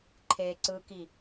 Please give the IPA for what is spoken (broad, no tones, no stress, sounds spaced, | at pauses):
ǃʰ e ǀ ɯ k i